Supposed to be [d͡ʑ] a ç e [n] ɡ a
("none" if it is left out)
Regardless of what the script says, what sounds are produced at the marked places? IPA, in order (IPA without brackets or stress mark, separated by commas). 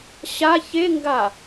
ɕ, ŋ